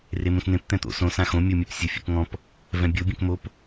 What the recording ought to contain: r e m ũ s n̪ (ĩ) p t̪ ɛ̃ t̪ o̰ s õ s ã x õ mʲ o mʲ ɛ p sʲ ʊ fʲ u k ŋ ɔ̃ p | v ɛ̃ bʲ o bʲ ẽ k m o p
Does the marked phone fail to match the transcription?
yes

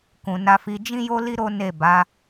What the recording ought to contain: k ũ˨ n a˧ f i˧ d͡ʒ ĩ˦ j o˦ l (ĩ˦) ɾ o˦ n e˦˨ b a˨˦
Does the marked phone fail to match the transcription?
yes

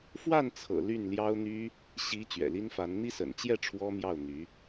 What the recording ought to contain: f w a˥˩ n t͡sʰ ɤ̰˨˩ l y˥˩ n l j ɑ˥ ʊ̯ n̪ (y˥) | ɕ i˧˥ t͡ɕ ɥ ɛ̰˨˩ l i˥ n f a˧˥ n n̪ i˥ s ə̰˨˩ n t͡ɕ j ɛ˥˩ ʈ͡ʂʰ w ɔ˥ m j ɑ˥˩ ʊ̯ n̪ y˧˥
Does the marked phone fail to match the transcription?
no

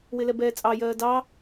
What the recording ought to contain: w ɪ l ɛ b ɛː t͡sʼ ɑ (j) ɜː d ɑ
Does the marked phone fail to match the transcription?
no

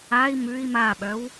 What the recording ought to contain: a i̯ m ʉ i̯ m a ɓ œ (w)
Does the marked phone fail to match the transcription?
no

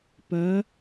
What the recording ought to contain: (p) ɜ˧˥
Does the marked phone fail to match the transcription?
no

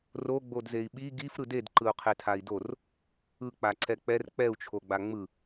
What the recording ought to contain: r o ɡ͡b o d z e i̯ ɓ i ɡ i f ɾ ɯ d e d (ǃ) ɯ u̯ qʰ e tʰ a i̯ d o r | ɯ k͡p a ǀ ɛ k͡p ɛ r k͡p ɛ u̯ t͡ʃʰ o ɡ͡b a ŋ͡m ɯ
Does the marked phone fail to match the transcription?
no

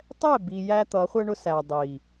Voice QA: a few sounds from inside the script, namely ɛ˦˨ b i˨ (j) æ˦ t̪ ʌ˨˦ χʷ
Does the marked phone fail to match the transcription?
no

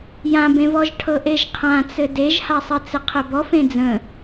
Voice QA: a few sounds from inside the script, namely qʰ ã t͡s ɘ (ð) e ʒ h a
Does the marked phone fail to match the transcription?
yes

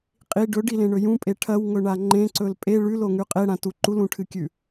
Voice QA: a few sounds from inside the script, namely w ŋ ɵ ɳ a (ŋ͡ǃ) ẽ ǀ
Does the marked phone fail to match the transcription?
no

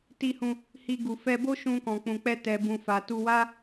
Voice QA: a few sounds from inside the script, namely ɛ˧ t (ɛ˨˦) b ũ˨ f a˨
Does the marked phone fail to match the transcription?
yes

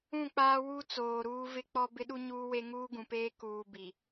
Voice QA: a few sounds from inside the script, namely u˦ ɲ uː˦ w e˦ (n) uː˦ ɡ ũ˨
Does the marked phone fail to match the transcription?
yes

